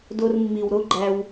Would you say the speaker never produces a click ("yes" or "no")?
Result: no